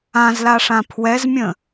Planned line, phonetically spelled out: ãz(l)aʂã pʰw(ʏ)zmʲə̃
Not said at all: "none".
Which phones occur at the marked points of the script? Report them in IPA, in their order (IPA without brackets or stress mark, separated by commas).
l, ɛ